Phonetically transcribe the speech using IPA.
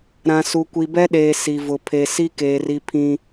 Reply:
ɾ ã˨ s u˨ kʷ i˨ b ɛ˦ ɗ eː˨ s i˨ v ʊ˨ pʰ e˨ s i˦ k eː˨ r i˦ pʰ ĩ˦

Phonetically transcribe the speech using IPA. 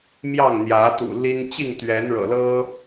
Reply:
m j ɑ˥˨ ŋ n̪ j ä˨˦ t̪ ṵ˨˩ l i˦ n t͡ɕ i˥˨ ŋ t̪ ɥ ɛ˨˦ n ɻ ɤ̰˨˩ l ɤ˦

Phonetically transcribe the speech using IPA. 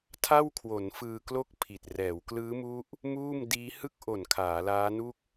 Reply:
tʰ a˥˩ w kʰ w o˩˦ n f ɯː˧ k l o˥˩ k̚ pʰ i˨˩ t̚ r ɛː˩˦ w k l ɯː˦˥ m u˦˥ ʔ | m uː˥˩ m d iː˦˥ h ɯ˥˩ k̚ ʔ o˨˩ n kʰ aː˩˦ l aː˦˥ n u˥˩ k̚

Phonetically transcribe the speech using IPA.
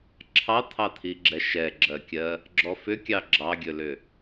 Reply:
ǁʰ ɑ t̪ʰ ɑ t̪ʰ i ɡ͡ǁ ɛ ʃ ɛ ɡ͡ǁ ɜ kʲ ɜ | ɡ͡ǁ ɔ f ʏ kʲ ɑ ɡ͡ǁ ɑ ɡʲ ɵ l ʏ

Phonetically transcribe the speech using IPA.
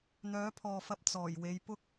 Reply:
n̪ œː˨˥ pʰ ɔː˨ f ɐ˧ p̚ t͡s ɔː˨˩ j w e˨˧ j p ʊ˥ k̚

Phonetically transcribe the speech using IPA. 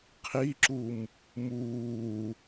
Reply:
qʰ i ǁ u m | m uː

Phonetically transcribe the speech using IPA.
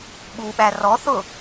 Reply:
ɓ u ɓ æ r ɔ θ ʊ

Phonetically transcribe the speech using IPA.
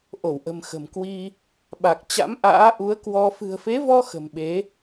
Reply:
ʔ o˧˩ w ʔ ə̤˨˩ m x ə̤˨˩ m k w i˧ | ɓ a˨˩ k̚ t͡ɕ a̰˧˥ m ʔ a̰ː˧˥ ʔ u˨˦ ə̯ k w ɔ˧ f ɨ̤˨˩ ə̯ f e˨˦ v ɔ˧ x ə̤˨˩ m ɓ e˨˦

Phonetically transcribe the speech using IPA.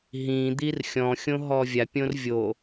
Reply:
ɦ ĩ d̪ i r xʲ ɔ̃ xʲ õ ɦ ɔ vʲ a pʲ õ r vʲ o

